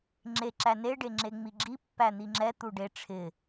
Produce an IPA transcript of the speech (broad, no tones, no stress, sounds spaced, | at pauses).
ŋ͡ǁ e ǁ æ n e ɖ e ŋ͡ǁ e ŋ͡m i ɡ͡ǁ i pː æ n̪ i ŋ͡ǁ ɛ t̪ u ɖ e ʈ͡ʂʰ ɪ